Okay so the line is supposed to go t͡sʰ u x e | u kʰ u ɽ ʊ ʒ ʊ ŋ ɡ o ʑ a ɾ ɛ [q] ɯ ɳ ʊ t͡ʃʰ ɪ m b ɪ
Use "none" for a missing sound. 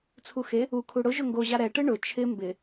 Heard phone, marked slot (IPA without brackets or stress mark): ʈ